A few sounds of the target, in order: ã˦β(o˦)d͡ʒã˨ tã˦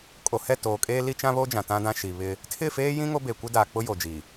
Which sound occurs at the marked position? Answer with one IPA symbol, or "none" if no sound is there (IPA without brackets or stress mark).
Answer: o˦